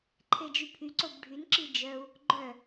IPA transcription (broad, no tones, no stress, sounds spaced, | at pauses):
ǃʰ e d͡ʒ y pʰ y ǀ o b ɖʱ y n ǁ i d͡ʒ œ u̯ | ɡ͡ǃ œ